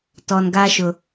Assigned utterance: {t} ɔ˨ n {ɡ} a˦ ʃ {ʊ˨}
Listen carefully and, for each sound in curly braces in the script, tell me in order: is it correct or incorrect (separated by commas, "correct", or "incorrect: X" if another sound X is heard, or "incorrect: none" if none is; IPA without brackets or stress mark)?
correct, correct, correct